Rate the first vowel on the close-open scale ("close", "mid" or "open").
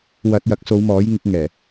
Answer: open